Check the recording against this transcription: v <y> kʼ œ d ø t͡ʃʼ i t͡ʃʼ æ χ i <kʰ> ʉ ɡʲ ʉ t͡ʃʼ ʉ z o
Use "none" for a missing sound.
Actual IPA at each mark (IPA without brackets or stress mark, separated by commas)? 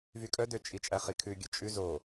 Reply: y, kʰ